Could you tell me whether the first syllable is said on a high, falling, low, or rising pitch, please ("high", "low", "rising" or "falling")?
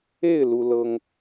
falling